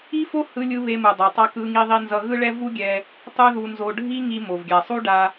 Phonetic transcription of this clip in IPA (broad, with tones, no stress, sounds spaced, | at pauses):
i˥ f o˥ h ɯ˧ lʲ ɯ˧ β e˧ m u˩ dˤ o˩ tˤ a˧ k ɯ˧ ŋ i˧ ðˤ i˧ n z ʌ˧ ɣ ɯ˥ ɭ ɛ˥ v u˥ ɡʲ ɛ˧ | tˤ u˥ ð u˧ n z o˧ ɖʱ i˥ ŋ i˧ m o˩ v ɡʲ a˩ sˤ u˥ ɖ a˧